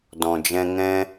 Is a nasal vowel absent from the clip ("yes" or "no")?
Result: no